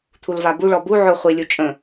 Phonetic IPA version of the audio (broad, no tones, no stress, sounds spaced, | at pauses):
t̪ʰ u l v a b u ɭ ɔ b u ʕ ʊ χʷ i lʲ u t͡ʃʼ ə̃